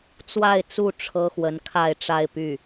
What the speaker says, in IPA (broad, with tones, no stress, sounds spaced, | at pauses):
t͡s w a˥˧ ɪ̯ t͡s u˥˩ ʈ͡ʂʰ ɤ˥ x w ə˧˥ n kʰ a˥˧ ɪ̯ ʈ͡ʂ a˥˧ ɪ̯ p y˥˩